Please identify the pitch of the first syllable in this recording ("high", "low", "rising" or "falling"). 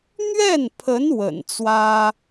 falling